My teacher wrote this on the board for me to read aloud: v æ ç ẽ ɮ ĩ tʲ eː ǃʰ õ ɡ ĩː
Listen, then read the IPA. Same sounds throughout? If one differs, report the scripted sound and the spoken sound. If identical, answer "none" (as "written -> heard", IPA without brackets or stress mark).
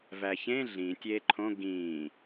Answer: none